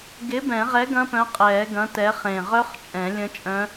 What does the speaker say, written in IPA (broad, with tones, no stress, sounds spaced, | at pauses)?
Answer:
ɡ ɪː˨˥ b ɛ̃˨˩˦ ʁ ɛ˨˥ ɡ ɐ̃˦˥ p œ̃˨˥ qʼ ɛː˨˩˦ ɡ ɐ̃˨˥ t ɛ˨˥ χ ẽ˧˩ ʁ œ˦˥ χ t͡ʃʼ ɛ̃˨˩˦ lʲ ə̃˦˥ t͡ʃʼ œ̃˦˥